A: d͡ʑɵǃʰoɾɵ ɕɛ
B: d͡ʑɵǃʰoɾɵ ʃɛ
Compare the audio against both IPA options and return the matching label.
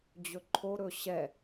A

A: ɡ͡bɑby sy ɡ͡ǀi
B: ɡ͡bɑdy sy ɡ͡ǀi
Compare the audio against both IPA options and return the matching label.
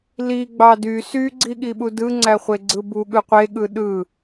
B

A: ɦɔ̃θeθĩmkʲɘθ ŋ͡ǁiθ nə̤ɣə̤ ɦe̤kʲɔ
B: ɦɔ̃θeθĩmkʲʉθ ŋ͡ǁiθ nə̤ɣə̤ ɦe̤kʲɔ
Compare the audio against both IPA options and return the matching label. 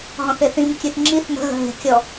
B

